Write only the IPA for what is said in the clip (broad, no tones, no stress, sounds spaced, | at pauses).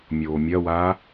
mʲ oː mʲ ɐ w aː